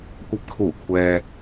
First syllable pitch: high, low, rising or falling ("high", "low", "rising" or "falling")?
low